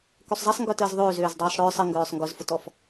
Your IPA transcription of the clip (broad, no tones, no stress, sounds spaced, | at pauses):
k ø sˤ zˤ ɐ sˤ ŋ ɡ œ t əː z ðˤ øː z øː z dˤ œː sˤ ɽ œː sˤ ə ŋ ɡ œː sˤ ŋ ɡ ʊ z f ʊ t ɔ f